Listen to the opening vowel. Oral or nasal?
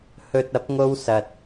oral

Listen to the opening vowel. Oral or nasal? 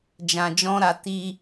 nasal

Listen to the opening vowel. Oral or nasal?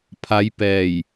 oral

